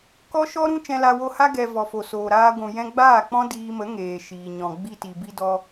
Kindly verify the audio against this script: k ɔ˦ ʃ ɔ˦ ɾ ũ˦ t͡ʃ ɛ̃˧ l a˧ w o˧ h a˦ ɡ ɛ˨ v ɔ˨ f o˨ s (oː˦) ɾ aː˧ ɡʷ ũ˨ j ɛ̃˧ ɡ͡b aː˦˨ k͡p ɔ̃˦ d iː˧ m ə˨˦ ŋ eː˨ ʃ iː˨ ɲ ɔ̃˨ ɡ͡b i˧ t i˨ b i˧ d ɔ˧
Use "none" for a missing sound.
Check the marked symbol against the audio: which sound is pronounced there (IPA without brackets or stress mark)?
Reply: oː˨